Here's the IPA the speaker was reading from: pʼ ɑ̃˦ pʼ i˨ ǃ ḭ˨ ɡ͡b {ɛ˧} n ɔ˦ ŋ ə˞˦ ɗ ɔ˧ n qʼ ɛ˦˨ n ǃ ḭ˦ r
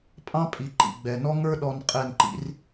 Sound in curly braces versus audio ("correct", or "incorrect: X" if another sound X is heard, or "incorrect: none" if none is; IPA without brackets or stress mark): incorrect: ɛ˨